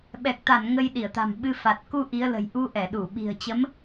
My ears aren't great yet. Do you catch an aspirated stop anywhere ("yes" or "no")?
no